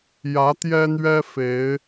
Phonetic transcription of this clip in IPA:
j ä˨˦ t̪ j ɛ˦ n̪ ɥ ɛ˦ f e˨˦ ɪ̯

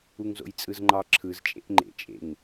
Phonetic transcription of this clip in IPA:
u ŋ z o̰ j t͡sʼ ɯ z ŋ͡ǃ ɑ ǁʰ ɯ z t͡ʃʼ ḛ ʔ ŋ͡ǃ ḛ t͡ʃʼ ḛ ŋ

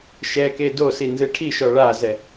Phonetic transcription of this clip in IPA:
ʃ ɛ k e d o s i n z ɨ ʈʰ i ʃ ɔ ɭ a z ɛ

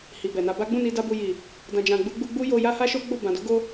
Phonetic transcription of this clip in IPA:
h i˨ b ɛ˨ n a˧ b a˦ ɡ͡b ũ˦˨ n i˧ d a˧ b u˨ j i˨ | d ã˧ d͡ʒ ã˧ ɡ͡b u˦ ɡ͡b u˦ ɡ͡b u˦ j o˧ j a˦ h a˦ ʃ o˦ ɡ͡b o˦˨ b ã˨ d o˨˦ ɡ o˧

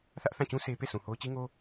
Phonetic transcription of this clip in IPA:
θ ä˦ ʔ θ ã˦˨ t͡ɕ ũ˦ sʰ e˦ p e˦˨ s ũ˨ h o˦ ʊ̯ t͡ɕ i˦ ŋ o˦

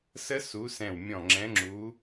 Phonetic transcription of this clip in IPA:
s ə˦˥ s u˨˦ s ɛ̃˧˩ w mʲ ɔ̃˧˩ ŋ͡ǁ ɛ̃˨˦ ŋ͡ǁ u˨˦

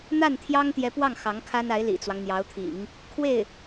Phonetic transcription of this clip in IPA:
n̪ a˥˩ n t̪ʰ j ɑ˥ ŋ t̪ j ɛ˧˥ p w ɑ˥˩ ŋ x ɑ˧˥ ŋ kʰ a˥ n a˧˥ ɪ̯ l ḭ˨˩ t͡s w ɑ˦ ŋ n̪ j ɑ˧˥ ʊ̯ t̪ʰ ḭ˨˩˦ ŋ | kʰ w e˥˩ ɪ̯

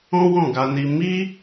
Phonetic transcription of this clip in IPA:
ɔ̃˦ w ɔ̃˦˨ ɡ a˧ n i˧ m i˦

